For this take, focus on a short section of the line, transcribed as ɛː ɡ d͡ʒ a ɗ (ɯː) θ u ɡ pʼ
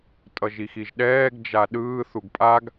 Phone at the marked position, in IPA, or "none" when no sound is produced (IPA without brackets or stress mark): ɯː